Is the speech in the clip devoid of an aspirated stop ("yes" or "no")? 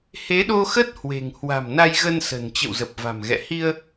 yes